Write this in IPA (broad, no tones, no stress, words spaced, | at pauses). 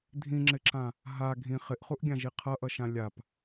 dʱĩŋ͡ǁɪǁã | ɦa ɡʱĩ χɪʔχuʔɡʲãʒi qʰʌʔʌʃã lʲap